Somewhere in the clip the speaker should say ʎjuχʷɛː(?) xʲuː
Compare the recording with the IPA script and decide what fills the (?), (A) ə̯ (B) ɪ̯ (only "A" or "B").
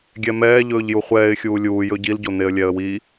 B